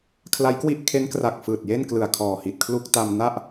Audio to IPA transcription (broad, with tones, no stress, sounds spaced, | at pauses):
kʰ l a˦˥ j k w i˥˩ ʔ kʰ e˦˥ n k r a˨˩ k̚ f ɯː˨˩ t̚ j e˥˩ n k l ɯ˨˩ a̯ kʰ ɔː˨˩ h i˨˩ t̚ kʰ l u˥˩ k̚ t a˧ m n a˥˩ ʔ